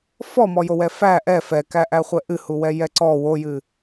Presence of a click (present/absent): present